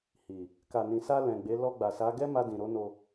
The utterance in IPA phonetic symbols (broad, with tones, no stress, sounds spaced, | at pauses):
h i˨ | k a˨ n ĩ˨ s a˧ l ɛ̃˨ ɡ͡b e˨˦ l ɔ˧ ɡ͡b a˨ s a˨˦ ɡ ɛ˦ m a˧ d ĩ˨ ɾ o˨˦ n o˧